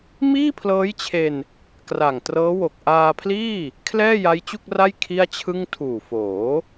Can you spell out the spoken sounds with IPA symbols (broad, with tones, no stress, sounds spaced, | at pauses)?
m iː˥˩ pʰ l ɤː˦˥ j t͡ɕʰ e˧ n | k r a˨˩ ŋ t r ɤː˦˥ w o˨˩ k̚ ʔ aː˧ pʰ l iː˥˩ | kʰ l ɛː˥˩ j a˦˥ j t͡ɕ u˥˩ k̚ r a˥˩ j kʰ i˥˩ a̯ t͡ɕʰ ɯ˥˩ ŋ tʰ uː˨˩ f oː˩˦